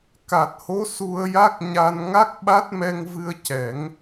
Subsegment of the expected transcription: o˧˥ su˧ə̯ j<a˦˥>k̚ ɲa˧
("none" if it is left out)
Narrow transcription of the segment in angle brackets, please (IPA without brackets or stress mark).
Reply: a˦˥